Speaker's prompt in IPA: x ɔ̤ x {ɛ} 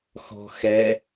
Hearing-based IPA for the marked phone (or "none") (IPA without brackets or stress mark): ɛ